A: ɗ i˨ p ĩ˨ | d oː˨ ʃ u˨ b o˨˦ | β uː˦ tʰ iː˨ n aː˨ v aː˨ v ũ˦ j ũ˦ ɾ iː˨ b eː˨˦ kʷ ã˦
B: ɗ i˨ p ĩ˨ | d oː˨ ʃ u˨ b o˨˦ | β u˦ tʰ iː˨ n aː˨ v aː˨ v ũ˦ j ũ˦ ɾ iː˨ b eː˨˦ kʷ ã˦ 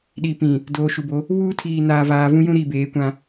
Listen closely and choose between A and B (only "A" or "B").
A